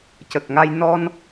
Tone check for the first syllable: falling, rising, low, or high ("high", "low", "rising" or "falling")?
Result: low